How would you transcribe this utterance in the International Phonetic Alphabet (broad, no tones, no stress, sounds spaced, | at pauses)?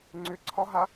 ŋ͡ǀ ʏ ǀʰ ɒ ɦ a